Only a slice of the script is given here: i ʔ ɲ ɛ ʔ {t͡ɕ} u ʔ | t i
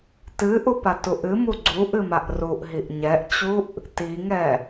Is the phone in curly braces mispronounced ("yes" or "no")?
no